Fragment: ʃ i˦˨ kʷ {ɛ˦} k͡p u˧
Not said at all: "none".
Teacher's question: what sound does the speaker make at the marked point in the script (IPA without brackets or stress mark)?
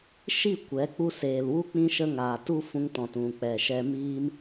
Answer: ɛ˨˦